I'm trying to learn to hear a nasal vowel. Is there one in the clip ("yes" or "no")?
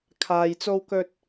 no